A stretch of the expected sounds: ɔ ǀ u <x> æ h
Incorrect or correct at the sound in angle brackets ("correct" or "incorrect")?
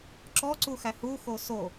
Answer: correct